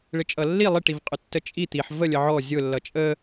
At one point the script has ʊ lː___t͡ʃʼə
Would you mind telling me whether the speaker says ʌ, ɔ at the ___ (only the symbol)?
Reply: ʌ